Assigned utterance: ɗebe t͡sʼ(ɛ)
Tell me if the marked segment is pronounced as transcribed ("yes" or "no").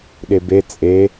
no